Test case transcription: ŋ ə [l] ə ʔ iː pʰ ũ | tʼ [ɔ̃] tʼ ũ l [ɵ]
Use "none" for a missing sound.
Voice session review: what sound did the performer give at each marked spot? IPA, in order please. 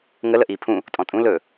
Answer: l, ɔ̃, ɵ

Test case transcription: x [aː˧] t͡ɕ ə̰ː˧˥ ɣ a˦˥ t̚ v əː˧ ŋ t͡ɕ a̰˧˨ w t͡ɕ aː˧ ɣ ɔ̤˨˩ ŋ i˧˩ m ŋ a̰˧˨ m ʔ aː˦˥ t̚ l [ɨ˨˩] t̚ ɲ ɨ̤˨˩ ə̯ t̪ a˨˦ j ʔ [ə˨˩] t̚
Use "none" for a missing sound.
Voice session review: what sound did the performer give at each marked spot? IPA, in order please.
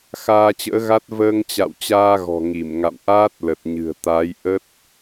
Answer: aː˧, ə˨˩, ə˦˥

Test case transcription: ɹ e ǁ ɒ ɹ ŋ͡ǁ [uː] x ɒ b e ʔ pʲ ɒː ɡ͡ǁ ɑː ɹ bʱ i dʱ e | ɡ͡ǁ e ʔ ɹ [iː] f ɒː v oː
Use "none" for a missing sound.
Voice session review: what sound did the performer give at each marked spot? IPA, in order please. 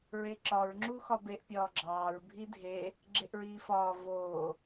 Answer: uː, iː

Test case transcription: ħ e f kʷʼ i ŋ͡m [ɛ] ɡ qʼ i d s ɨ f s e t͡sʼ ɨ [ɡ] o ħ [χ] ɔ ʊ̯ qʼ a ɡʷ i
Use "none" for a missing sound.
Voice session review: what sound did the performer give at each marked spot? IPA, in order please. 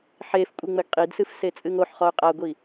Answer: ɘ, ŋ, χ

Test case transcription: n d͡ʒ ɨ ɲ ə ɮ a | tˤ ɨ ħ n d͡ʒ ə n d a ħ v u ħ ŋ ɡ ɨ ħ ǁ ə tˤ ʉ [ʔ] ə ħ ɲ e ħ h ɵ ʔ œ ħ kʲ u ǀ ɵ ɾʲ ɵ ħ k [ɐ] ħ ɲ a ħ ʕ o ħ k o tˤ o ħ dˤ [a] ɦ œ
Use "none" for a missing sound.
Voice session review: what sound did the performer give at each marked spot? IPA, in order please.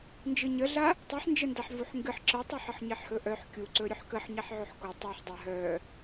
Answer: ħ, ə, a

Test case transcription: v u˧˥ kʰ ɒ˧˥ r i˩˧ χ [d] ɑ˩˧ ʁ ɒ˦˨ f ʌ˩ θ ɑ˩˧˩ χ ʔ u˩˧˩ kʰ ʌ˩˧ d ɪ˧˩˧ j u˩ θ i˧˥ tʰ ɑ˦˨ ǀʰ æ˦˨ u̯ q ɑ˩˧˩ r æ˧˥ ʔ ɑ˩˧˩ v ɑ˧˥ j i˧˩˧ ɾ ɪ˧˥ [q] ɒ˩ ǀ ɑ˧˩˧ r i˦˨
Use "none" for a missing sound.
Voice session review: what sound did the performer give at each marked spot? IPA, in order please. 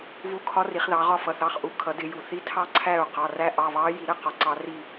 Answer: ð, q

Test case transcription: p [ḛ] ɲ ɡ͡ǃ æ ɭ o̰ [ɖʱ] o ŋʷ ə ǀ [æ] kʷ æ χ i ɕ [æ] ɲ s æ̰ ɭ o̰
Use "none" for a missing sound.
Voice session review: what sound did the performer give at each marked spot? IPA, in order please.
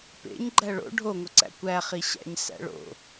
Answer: ḛ, ɖʱ, æ̰, æ̰

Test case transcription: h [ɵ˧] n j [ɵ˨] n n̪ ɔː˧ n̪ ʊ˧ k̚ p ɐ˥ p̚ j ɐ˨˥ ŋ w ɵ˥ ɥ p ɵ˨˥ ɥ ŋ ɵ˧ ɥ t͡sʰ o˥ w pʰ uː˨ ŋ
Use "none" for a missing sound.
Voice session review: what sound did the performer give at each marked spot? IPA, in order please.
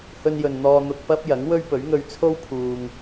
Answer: ɵ˧, ɵ˨

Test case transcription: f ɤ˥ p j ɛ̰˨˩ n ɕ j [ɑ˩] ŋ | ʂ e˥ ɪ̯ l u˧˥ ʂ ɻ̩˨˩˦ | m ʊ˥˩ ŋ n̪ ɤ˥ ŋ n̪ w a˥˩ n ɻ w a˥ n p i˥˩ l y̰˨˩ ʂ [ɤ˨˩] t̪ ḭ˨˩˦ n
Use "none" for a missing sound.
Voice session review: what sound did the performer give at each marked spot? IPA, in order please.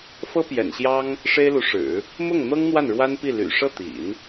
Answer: ɑ˥, ɤ˥˩

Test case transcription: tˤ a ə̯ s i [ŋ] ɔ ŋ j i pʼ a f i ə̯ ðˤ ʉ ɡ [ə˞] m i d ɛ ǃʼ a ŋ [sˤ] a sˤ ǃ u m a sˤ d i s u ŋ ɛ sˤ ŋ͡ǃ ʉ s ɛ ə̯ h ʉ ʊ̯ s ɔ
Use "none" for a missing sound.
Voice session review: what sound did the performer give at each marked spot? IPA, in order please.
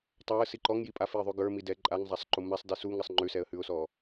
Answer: ǃ, ə˞, zˤ

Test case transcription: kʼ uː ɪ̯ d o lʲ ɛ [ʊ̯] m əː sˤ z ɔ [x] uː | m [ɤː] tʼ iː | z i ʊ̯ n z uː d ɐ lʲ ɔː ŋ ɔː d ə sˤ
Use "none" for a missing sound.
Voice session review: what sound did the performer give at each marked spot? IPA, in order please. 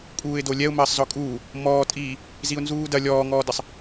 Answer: ʊ̯, kʼ, ɔː

